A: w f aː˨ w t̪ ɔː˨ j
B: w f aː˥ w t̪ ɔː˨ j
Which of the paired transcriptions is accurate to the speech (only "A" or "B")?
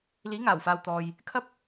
A